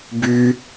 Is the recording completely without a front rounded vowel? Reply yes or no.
no